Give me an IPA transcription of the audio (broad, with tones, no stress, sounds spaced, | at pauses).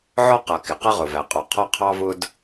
ʕ ɔ˦ q ʌ˨ k ɪ˨ q ʌ˦ ʁ ʊ˨ v æ˨ qʼ ɔ˨ qʰ ɔ˦ qʰ ɑ˦ v ʊ˦ d